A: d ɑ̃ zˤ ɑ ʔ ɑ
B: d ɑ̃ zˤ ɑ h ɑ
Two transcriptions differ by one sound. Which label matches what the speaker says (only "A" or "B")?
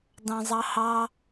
B